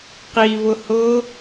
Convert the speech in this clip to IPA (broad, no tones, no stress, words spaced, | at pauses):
qivʊhʊ